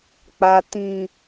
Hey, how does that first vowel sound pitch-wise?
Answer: low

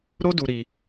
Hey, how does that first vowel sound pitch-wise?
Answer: high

